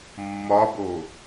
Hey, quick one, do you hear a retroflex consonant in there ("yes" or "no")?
no